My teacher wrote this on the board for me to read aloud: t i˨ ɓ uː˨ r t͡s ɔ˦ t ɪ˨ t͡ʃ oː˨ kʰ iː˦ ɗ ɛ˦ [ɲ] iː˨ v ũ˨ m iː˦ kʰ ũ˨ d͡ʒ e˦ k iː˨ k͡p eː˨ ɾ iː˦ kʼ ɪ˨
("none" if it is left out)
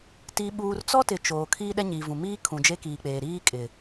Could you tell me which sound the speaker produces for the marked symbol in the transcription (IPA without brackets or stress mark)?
ɲ